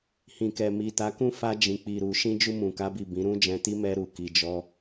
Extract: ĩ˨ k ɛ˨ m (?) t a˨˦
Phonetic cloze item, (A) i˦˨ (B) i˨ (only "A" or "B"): B